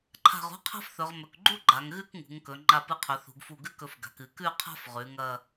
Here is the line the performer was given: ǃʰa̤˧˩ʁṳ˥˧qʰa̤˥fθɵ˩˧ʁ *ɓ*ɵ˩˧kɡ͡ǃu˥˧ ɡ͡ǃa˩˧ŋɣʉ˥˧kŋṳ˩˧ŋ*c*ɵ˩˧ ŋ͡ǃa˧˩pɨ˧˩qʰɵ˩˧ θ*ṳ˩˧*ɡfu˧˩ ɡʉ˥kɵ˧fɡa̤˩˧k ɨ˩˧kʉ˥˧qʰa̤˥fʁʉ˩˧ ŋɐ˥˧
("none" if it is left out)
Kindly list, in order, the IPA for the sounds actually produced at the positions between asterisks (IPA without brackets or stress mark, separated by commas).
m, k, ṳ˩˧